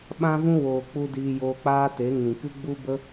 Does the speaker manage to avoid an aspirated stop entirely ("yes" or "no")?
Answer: yes